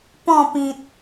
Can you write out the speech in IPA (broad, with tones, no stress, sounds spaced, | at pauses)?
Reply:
p ɔ̃˥˧ p ĩ˨ t̚